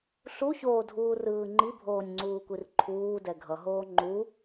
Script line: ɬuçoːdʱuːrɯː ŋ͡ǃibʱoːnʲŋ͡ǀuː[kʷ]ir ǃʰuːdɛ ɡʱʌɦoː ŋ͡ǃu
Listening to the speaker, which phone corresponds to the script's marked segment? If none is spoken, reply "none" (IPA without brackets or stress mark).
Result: kʷ